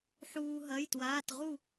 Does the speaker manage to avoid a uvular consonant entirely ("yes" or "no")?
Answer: no